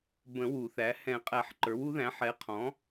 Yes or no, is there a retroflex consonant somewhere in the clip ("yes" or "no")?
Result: no